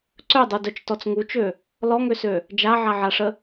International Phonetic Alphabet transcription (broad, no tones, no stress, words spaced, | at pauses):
ǀœdˤudœt͡ʃ tɔt͡sŋut͡ʃø | lɔŋøsø | d͡ʒaʕaʕaʂə